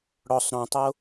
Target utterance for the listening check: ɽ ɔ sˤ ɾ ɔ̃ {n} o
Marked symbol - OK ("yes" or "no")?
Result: no